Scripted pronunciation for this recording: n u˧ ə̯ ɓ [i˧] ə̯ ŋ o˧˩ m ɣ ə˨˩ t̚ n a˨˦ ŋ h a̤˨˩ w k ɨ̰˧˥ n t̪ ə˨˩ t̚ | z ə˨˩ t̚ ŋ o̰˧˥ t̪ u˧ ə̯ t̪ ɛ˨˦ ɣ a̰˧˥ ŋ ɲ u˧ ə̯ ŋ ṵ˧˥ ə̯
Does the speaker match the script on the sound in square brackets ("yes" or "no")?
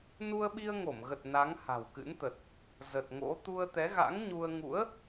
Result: yes